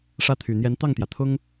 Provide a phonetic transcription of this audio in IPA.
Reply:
ʂ ä˥˩ t̪ʰ y˨˩ n̪ j ɛ˧˥ n t̪ ɑ˥˩ ŋ t̪ j ä˩ t̪ʰ ʊ˥ ŋ

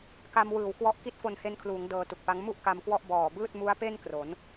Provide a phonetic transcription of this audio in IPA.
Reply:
k a˧ m w ɯː˨˩ w k w ɔ˦˥ ʔ k i˦˥ t̚ f o˧ n h e˧ n kʰ l uː˩˦ ŋ d ɤː˧ t u˨˩ k̚ p a˦˥ ŋ m u˥˩ ʔ k a˧ m k w ɔ˥˩ ʔ b ɔː˨˩ b ɯː˥˩ t̚ m u˦˥ a̯ p e˥˩ n k r o˩˦ n

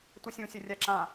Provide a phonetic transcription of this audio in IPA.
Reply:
tʷ i sʲ ũ sʲ ə rʲ a ǁ ã

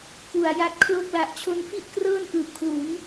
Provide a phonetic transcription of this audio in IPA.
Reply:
k u˨˩ a̯ j a˦˥ t̚ kʰ l o˥˩ k̚ l a˨˩ ʔ t͡ɕʰ o˧ n f i˥˩ ʔ k r ɤː˥˩ n ʔ ɯː˨˩ p̚ kʰ l u˩˦ n

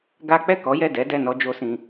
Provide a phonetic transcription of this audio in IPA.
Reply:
ɡ a˦ k͡p ɛ˦˨ k ɔ˨˦ j ɛ˦˨ d ɛ˨˦ d ɛ˦˨ n ɔ˧ d͡ʒ o˦ s ĩ˧

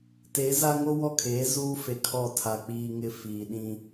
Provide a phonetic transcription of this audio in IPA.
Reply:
t e˨˦ z a˦ ŋ o˦ w ɔ˦˨ kʰ eː˨˦ z uː˦ f e˨ kʰ ɔ˦˨ tʰ a˨ k͡p iː˨ ŋ ɪ˨ f iː˨ ɗ ĩ˦

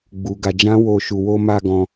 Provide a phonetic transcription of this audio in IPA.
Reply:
ɡ͡b u˦ ɡ a˦ d͡ʒ ã˦ w o˧ ʃ u˧ w o˧ m a˧ ɡ ɔ̃˧

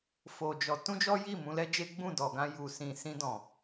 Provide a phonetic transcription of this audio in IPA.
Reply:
f o˧ d͡ʒ ɔ˧ t ũ˦ d͡ʒ ɔ˦ j i˦˨ m ũ˧ l ɛ˦ d͡ʒ e˦ ɡ͡b ũ˦˨ d ɔ˨ ɡ ã˧ j u˨ s ĩ˨ s ĩ˧ d ɔ̃˨

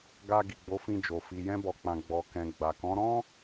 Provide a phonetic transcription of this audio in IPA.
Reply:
ɡ a˧ ɡ i˨ ɡ͡b o˨˦ f ĩ˧ d͡ʒ o˨ f i˨ j ɛ̃˧ b ɔ˨ k͡p ã˨ ɡ͡b ɔ˨ k ɛ̃˨ ɡ͡b a˨ k ɔ̃˨˦ ɾ ɔ̃˦

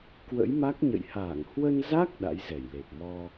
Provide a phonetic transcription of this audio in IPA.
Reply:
k w ə̰˧˥ j m a˦˥ k̚ ɲ ə̰˧˨ j h aː˧˩ ŋ h w ə˧ n z a˦˥ k̚ ɗ a̰˧˥ j z ɛ˧˩ j l e˨˩ p̚ m ɔ˧

